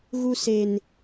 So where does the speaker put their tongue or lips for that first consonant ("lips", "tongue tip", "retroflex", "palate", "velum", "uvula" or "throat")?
velum